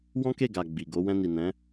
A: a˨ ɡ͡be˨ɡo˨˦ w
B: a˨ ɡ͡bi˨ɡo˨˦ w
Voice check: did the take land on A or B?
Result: B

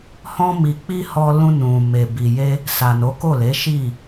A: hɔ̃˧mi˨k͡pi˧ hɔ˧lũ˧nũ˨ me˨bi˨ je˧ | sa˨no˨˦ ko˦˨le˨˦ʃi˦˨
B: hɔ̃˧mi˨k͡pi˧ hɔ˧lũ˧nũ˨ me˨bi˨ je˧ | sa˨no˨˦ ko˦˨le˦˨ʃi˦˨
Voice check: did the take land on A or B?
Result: A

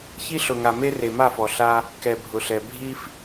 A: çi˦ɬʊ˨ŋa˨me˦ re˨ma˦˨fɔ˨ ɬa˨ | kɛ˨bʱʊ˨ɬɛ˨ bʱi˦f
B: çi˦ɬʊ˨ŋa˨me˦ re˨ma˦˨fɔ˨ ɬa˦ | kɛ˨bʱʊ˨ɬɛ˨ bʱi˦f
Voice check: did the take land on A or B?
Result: B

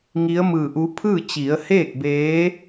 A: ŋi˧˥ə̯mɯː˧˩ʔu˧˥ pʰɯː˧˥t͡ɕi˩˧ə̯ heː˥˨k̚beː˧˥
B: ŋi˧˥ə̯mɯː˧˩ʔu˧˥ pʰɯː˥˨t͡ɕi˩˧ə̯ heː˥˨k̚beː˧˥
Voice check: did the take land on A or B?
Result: B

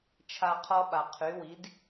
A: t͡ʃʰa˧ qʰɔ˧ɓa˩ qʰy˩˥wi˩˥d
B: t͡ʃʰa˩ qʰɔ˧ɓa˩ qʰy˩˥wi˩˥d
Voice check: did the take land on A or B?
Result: A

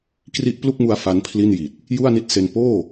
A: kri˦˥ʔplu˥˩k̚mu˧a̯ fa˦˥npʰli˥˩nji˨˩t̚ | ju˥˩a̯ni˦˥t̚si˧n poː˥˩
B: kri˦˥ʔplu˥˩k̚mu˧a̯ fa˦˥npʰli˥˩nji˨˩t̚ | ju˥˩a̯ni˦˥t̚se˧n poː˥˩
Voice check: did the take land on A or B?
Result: B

